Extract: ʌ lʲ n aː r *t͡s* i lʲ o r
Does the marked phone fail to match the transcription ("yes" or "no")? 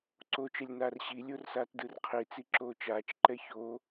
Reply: yes